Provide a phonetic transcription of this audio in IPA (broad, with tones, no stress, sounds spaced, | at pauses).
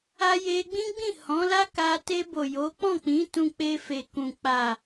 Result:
a˧ j e˧ ɡ͡b ĩ˦ ɡ͡b ĩ˦˨ h ɔ̃˨˦ l a˦ k a˧ t e˧ b o˨ j o˨˦ k͡p ɔ̃˦˨ k͡p ĩ˨˦ t ũ˧ k͡p e˧ f e˨ k ũ˨ k͡p a˨